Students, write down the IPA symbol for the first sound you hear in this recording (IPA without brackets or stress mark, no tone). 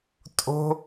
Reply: tʼ